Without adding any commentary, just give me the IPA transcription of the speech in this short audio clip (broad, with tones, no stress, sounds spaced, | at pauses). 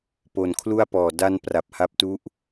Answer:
p o˩˦ n kʰ l u˥˩ a̯ p ɔː˨˩ d a˧ n p r a˨˩ p̚ h a˦˥ p̚ t u˦˥ ʔ